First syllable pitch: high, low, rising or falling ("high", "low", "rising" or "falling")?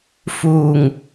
low